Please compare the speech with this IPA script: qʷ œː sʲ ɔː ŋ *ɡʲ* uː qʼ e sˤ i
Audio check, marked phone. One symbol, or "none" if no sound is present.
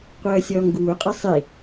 ɡ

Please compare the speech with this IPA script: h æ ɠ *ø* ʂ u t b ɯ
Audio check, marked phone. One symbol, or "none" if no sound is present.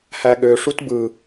ø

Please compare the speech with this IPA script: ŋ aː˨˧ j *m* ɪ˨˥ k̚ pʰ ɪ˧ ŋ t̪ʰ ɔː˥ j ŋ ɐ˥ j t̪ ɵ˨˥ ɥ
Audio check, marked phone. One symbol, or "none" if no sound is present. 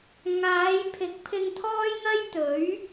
pʰ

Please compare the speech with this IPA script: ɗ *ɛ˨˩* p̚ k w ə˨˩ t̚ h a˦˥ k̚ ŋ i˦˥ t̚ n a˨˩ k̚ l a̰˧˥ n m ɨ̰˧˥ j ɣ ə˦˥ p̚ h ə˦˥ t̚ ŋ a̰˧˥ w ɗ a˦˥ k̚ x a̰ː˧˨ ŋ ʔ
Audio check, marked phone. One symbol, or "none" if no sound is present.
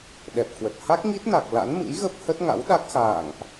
ɛ˨˩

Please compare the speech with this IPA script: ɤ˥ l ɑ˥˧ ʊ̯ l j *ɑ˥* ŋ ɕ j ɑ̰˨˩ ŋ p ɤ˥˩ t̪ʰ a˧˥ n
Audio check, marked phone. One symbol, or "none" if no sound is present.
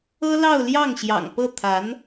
ɑ˥˩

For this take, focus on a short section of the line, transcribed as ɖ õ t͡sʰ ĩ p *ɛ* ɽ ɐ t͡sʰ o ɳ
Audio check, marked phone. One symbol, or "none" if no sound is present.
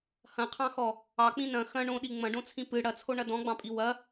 ɨ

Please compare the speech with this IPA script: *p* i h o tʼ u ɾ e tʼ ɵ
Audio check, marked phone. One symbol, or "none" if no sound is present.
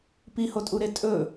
p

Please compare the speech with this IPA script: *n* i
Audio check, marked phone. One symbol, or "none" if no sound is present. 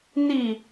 n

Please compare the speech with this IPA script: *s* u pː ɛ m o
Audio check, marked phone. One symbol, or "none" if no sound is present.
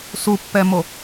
s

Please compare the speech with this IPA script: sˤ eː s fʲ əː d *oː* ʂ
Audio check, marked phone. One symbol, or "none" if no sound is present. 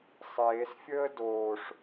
oː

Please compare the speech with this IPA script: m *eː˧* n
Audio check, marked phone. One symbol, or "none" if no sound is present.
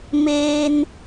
eː˧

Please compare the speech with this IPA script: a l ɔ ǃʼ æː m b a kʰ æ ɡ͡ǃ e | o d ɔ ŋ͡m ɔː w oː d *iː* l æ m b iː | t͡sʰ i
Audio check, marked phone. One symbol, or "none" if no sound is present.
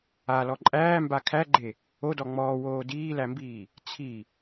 iː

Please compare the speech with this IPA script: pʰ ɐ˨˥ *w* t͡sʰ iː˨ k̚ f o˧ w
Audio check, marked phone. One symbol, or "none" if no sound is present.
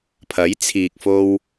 j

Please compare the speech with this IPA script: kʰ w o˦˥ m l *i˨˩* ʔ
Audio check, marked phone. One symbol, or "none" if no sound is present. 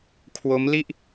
i˥˩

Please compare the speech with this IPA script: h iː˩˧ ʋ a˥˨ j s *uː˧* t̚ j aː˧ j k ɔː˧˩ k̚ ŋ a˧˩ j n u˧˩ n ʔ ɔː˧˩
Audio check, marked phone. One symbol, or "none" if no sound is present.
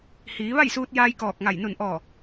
uː˧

